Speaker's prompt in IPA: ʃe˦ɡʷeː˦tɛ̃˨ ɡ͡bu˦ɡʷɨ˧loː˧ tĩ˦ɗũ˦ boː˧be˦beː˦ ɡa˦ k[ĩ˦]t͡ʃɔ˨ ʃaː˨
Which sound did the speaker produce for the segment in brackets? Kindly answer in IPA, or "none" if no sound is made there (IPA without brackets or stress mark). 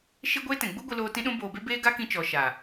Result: ĩ˦